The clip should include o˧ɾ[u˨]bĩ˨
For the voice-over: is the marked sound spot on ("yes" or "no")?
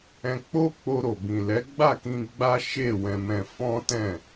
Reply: no